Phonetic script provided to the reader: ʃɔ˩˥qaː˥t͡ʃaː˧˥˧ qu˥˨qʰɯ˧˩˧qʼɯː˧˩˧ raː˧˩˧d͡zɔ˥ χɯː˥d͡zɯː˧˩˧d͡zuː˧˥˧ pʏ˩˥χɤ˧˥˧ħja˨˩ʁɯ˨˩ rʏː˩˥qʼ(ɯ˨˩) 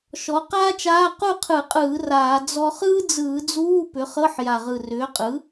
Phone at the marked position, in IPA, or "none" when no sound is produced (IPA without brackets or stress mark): ɯ˩˥